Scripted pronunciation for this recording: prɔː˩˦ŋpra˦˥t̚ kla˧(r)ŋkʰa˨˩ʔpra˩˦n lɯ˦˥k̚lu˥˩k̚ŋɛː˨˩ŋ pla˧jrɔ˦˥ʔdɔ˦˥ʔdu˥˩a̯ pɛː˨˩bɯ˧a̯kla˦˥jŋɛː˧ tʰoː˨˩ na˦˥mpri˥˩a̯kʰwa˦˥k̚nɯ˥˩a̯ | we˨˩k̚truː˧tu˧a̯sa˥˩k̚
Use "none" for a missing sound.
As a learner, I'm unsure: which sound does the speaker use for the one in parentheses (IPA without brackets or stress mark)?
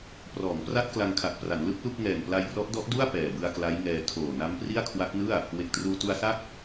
none